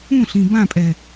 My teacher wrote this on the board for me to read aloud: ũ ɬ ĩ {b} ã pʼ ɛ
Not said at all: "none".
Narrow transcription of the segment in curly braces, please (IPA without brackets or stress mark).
b